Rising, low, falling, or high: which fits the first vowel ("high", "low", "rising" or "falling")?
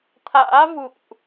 rising